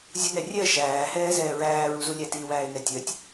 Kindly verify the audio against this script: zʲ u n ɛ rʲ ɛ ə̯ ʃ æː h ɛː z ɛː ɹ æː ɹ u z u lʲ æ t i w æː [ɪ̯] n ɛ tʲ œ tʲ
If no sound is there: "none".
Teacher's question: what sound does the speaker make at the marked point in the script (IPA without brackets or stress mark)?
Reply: ɪ̯